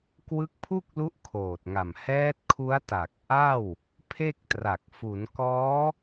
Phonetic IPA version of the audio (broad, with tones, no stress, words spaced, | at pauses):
kwɯ˦˥k̚pʰu˥˩k̚lu˦˥ʔ kʰoː˨˩t̚ŋa˨˩m hɛː˦˥t̚ kʰu˦˥a̯ta˨˩k̚ʔa˥˩w | pʰe˥˩k̚tra˨˩k̚ fu˩˦n kɔː˦˥